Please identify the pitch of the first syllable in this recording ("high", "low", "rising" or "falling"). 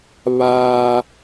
high